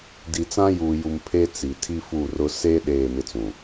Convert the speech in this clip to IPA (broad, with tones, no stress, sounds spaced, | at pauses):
d i˨ t͡s ã˦ j uː˨ j u˨ m pʰ e˦ t͡s i˨ tʰ i˦ f u˦˨ r ʊ˦ s e˦ ɗ eː˦˨ m ɪ˦ t͡s ũ˨